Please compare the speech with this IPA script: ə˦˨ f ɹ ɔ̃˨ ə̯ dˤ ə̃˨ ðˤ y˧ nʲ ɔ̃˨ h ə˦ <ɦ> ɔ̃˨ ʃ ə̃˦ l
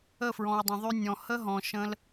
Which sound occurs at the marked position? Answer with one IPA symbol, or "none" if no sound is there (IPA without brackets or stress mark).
ɦ